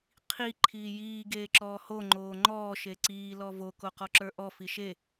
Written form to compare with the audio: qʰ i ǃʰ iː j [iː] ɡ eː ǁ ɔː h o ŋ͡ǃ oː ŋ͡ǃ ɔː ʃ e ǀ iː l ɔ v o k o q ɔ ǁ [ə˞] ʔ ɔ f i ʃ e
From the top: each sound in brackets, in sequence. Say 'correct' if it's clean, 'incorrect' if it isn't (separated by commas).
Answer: correct, correct